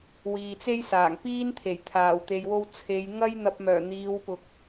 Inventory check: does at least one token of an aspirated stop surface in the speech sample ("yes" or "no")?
yes